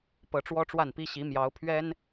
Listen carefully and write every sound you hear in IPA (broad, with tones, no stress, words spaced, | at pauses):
pɤ˧˥ʈ͡ʂwɔ˥ʈ͡ʂwa˥˩npi˥ ɕi˧˥mjɑ˧˥ʊ̯pʰɥɛ˥n